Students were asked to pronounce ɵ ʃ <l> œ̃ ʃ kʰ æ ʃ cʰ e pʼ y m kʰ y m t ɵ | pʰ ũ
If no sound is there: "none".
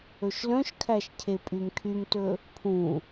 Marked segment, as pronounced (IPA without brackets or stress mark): l